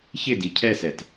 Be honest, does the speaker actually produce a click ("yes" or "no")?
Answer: no